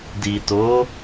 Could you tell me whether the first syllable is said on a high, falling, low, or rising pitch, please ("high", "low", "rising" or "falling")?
low